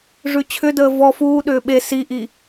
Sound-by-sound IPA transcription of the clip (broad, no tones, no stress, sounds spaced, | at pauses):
ʐ ʉ t͡ɕʰ ʏ d əː v ɔ f uː ɗ ʏː ɓ e s i ʔ i